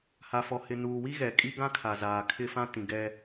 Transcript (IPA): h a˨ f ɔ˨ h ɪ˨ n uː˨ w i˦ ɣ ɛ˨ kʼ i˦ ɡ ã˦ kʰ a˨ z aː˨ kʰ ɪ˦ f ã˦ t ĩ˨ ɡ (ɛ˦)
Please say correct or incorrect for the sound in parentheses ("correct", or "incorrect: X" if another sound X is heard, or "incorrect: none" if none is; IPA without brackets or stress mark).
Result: correct